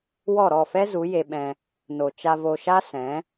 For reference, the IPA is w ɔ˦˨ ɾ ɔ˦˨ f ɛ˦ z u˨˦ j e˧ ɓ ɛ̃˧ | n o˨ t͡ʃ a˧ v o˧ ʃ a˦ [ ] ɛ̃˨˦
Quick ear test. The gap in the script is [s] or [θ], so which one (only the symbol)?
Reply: s